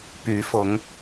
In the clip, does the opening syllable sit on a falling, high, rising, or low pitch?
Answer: rising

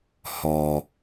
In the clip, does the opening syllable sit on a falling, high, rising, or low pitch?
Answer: low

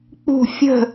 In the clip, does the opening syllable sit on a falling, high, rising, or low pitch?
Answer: falling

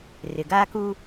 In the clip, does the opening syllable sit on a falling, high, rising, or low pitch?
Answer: low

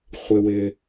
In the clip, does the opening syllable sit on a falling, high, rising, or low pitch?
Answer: high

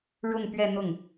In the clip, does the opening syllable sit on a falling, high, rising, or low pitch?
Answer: falling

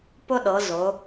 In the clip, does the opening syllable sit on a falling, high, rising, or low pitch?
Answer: high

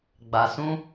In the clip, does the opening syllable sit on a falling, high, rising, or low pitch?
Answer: low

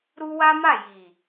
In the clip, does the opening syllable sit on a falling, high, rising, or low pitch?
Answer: high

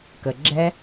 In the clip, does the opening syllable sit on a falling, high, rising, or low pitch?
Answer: low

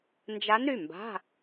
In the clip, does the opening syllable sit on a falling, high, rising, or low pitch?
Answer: rising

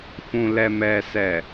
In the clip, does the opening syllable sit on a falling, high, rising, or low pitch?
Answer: low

